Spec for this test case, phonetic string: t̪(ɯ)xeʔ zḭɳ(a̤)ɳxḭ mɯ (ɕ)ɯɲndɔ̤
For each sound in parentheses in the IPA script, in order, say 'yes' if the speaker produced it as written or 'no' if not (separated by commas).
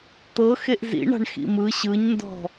no, yes, yes